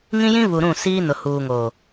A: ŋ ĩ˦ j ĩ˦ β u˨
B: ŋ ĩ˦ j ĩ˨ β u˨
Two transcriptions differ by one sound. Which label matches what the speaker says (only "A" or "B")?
A